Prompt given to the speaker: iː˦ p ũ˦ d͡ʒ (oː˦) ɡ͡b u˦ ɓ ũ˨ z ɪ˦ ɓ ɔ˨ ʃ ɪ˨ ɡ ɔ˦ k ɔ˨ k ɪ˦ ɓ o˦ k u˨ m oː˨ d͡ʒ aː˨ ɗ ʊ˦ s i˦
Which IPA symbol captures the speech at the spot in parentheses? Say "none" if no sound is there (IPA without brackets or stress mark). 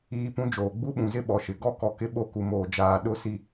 oː˨